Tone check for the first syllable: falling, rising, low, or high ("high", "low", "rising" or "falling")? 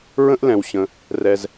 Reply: high